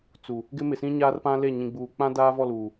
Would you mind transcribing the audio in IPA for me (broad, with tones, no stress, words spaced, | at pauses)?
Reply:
t͡su˨ | ɡɪ˦mɪ˨sĩ˦ ɲaː˦rpã˦le˦˨ ɲĩ˨ɡ͡buː˨k͡pã˦ daː˦vɔ˦˨luː˨